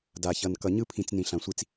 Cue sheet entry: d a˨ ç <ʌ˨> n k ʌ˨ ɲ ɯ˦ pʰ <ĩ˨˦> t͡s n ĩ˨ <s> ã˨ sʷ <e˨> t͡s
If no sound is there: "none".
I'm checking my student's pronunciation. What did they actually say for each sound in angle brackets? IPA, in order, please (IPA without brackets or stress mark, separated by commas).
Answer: ʌ˨, ĩ˨, ɬ, i˨